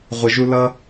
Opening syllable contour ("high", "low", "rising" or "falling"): low